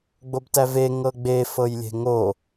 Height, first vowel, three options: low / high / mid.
mid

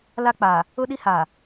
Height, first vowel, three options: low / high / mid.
low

